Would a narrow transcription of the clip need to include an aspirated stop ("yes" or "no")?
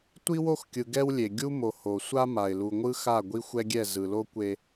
no